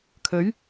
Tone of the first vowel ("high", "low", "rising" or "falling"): rising